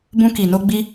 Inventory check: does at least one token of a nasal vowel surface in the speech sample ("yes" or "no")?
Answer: yes